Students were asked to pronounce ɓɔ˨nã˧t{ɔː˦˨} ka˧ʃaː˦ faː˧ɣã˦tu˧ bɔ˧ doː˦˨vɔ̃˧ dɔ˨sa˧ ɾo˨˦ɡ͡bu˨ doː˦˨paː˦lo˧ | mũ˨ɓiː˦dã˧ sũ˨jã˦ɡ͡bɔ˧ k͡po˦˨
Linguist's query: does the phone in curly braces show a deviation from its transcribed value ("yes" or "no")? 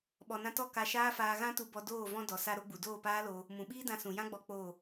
yes